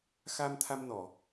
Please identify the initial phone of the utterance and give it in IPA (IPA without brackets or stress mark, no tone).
x